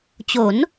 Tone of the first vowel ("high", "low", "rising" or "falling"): rising